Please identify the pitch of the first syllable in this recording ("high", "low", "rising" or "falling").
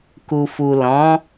low